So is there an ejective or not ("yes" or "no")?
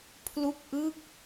no